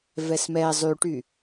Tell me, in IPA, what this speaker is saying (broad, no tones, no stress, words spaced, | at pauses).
vɛsmɛ zˤyʈy